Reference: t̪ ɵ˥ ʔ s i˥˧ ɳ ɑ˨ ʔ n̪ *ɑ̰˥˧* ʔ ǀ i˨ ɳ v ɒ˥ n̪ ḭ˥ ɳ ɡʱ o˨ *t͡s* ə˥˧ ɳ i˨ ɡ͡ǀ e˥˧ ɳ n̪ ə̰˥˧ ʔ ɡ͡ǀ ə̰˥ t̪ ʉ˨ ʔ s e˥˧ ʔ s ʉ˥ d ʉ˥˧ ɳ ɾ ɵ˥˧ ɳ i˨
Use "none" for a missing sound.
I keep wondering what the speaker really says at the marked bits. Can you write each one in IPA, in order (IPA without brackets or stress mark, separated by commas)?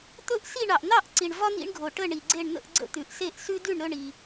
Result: ɑ˥˧, ʈ